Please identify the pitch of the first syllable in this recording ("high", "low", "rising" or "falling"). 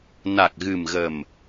low